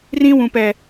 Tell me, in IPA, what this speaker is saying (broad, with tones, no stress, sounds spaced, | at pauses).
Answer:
r ĩ˦ w ũ˨ p ɛ˨